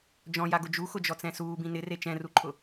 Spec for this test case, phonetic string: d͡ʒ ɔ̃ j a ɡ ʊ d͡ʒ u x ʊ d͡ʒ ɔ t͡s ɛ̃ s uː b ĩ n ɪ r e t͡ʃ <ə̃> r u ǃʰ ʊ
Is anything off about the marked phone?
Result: yes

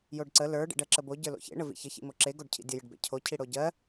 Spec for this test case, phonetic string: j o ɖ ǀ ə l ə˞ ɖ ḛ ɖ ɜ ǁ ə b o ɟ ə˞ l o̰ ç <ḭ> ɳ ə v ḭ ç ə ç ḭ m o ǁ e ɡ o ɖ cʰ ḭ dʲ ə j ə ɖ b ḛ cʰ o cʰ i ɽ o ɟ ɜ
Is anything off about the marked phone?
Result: yes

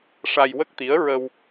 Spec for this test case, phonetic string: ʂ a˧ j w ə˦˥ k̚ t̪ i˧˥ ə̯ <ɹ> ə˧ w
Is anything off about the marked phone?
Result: no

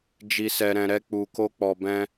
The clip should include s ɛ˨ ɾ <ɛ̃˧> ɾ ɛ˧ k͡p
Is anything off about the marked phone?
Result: yes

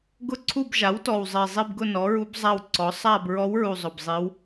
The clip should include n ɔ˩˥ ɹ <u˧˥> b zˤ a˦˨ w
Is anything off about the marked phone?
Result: no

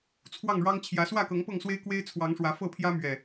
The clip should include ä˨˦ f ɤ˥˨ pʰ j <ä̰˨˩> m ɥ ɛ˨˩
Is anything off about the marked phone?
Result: yes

